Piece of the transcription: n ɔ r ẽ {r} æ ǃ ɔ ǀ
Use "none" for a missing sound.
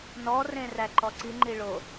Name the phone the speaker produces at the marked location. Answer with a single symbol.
r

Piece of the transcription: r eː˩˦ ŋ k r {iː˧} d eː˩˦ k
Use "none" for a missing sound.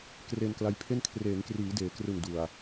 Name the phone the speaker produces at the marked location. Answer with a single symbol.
iː˩˦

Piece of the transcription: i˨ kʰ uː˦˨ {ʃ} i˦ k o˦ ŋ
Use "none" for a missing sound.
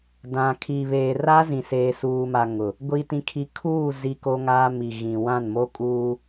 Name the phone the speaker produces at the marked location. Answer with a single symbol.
z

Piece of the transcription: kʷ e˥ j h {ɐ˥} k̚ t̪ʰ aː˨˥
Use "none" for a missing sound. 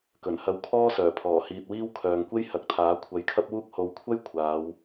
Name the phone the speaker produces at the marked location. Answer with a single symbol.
ɐ˨˥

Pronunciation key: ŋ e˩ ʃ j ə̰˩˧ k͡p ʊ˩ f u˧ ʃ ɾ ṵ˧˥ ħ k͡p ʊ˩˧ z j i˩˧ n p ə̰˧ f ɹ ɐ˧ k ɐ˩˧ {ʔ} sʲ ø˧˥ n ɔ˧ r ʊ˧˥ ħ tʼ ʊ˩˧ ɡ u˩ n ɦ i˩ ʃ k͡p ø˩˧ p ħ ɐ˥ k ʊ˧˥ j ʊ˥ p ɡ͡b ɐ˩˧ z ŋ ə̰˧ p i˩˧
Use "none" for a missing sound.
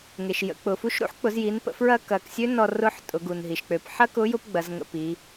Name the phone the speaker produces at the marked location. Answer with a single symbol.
k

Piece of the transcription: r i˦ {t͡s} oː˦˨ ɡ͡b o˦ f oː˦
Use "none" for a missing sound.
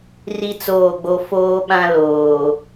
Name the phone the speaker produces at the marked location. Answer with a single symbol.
t͡s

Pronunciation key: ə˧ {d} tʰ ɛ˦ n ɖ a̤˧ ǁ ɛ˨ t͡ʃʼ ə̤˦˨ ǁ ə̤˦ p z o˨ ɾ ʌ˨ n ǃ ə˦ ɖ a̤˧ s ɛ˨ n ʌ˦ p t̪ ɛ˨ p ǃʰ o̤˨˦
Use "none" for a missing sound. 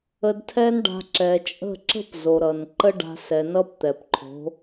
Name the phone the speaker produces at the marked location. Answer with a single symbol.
d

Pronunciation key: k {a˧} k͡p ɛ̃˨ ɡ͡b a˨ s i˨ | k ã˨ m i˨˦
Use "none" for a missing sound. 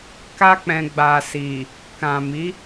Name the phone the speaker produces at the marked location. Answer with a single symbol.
a˧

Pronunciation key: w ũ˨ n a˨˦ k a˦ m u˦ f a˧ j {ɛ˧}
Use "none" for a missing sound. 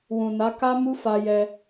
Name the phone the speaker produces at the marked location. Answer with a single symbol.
ɛ˧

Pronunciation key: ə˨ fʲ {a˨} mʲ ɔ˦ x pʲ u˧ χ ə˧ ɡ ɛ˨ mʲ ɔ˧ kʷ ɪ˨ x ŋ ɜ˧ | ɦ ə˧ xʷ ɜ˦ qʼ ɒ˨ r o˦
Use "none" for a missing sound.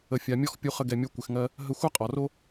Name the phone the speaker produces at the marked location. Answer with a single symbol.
a˨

